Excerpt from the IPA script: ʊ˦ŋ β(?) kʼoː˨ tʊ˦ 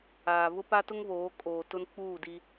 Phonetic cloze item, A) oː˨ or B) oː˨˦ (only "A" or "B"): B